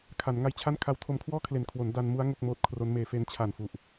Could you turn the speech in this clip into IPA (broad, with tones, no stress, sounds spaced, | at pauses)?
kʰ a˩˦ n ŋ a˦˥ j t͡ɕʰ a˥˩ n kʰ a˧ w tʰ o˧ m kʰ w ɔː˥˩ kʰ l e˨˩ n kʰ w o˩˦ n d a˧ n m u˦˥ a̯ ŋ o˥˩ k̚ m oː˦˥ t̚ kʰ r o˦˥ n m eː˧ f e˧ n t͡ɕʰ a˨˩ n f u˨˩ ʔ